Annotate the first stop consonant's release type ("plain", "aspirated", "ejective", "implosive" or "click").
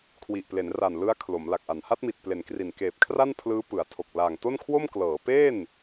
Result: aspirated